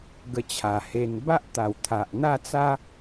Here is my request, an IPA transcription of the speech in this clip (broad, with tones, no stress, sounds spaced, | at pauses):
ɡ ə˧ t͡ɕʰ a˨˩ h e˧ n b a˦ ʔ t̪ a˨˩ w t̪ʰ a˨ ʔ n̪ a˥˧ t͡s a˦